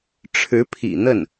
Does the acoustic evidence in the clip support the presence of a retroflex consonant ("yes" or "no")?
yes